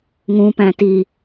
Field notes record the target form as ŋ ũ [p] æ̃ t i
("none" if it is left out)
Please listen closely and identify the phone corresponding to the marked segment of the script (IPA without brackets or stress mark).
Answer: p